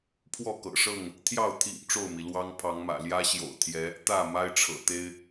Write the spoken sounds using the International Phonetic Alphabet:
pʰwɔ˥˨kɤ̰˨˩ʂɤ˥˨ŋ | t̪ʰjɑ˥˨ʊ̯ t̪ʰḭ˨˩ŋ ʈ͡ʂo˥˨ʊ̯mi˩ lwɑ˦ŋpʰɑ˨˦ŋmä̰˨˩ ljä˦ɕjo̰˨˩ʊ̯t̪ʰjɛ˨˦ | t̪ä˥˨ ma˦ɪ̯ʈ͡ʂʰɤ̰˨˩ t̪e˦ɪ̯

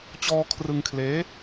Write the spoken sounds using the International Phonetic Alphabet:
t͡ɕɔː˧kʰrɯ˧ŋkʰleː˦˥

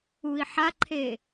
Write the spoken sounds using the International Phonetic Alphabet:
ui̯ħaǃʰe

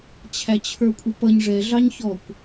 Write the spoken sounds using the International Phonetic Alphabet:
t͡ɕʰæt͡ɕʰə˞kʷʼɪpʌɲ ʐɛ ɮɑɲçɔkʷ

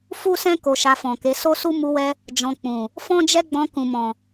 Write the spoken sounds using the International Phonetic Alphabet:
fu˦sɛ̃˦ ko˧ʃa˧fɔ̃˨ke˨˦ so˦su˦ mu˧wɛ˧ | d͡ʒɔ̃˧k͡pũ˨ | fɔ̃˦d͡ʒɛ˦ɡ͡bɔ̃˧ kũ˨mɔ̃˨

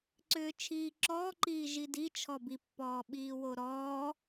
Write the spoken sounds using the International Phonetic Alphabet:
ǀʏːt͡ʃʰiːǁɔːǃiː ʒidi t͡ʃʰɔbipːɔː ɓiːwoɾɔː

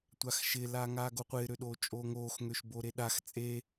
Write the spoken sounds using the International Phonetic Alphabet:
tʷaxʃɪ laːŋaːɡoqʷɪː ɾøɗoːt͡ʃʼoːŋoːx ŋøʃboɾeɗax t͡sʼe

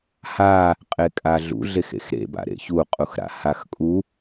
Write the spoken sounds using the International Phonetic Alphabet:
ha | qʼekʼaɮṵ ɮexḛxɾḛba̰ ɾḛçuqʼuxɾa̰ haxkʼu

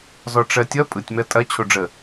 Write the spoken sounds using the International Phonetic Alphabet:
zɔʈ͡ʂɜtʲʌ pʼɯtʲmɜ tʼɐ t͡ɕʰoɖ͡ʐə

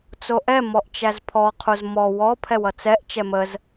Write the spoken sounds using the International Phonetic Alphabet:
t͡soʔɛ mɔʔt͡ʃæzpʰɔ qʰuzmɔ wɔ pʰɛwʌt͡sɛʔ t͡ʃɛməz

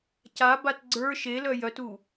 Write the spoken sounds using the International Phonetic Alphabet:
cabat ɡ͡ǀə˞ ʃelœ jœtu

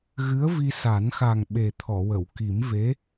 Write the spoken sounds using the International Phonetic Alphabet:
ɣɨ˧˥ə̯vi˧sa˨˩˦nxa˨˩ŋ ɓe˨˩t̪ʰɔ˨˩˨wə˨˩˨w ki˨˩˦mve˧˥

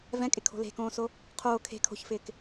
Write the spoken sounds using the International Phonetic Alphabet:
vɛ̃kʼɪkʰo̤ le̤kõːso | qʰoː kʰe̤kʰo̤çfɪːk

